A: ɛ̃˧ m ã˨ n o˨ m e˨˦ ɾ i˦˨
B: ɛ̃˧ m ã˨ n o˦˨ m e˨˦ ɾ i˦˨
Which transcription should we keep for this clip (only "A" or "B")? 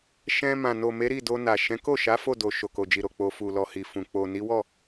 A